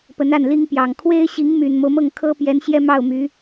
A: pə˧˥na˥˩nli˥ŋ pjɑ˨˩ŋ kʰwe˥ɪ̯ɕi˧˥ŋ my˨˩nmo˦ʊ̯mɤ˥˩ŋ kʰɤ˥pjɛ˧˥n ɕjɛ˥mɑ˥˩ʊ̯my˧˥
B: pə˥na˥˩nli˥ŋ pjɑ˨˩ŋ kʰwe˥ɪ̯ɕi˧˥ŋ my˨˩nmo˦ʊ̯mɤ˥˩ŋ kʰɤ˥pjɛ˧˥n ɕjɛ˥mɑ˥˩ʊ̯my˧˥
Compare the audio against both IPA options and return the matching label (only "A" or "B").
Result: A